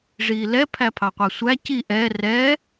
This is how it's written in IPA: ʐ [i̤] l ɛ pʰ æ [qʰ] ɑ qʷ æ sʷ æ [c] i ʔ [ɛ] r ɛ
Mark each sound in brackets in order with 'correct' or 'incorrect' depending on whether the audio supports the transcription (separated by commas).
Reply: incorrect, incorrect, correct, correct